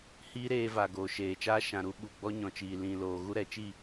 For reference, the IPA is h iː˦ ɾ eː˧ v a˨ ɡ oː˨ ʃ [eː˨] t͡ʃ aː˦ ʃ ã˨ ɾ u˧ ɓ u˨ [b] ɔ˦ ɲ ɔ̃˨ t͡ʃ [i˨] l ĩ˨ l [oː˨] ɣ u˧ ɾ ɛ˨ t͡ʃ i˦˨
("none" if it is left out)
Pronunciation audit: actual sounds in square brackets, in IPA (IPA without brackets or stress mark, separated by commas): eː˨, ɡ͡b, iː˨, oː˨